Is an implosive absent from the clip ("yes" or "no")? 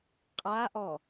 yes